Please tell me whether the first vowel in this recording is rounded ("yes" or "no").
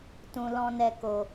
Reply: yes